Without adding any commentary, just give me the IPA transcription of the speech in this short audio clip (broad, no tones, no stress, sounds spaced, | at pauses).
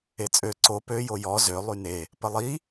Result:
e t͡sʼ ø ǀ o p ø j o j ɔ z ø lˠ y n e | p ə lˠ i